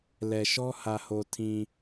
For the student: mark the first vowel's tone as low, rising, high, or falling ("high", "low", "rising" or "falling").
low